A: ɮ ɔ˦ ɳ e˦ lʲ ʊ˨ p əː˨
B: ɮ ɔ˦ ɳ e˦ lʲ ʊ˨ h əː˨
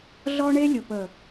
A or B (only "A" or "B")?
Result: A